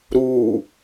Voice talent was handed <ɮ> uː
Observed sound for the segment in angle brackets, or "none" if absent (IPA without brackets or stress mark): ɾ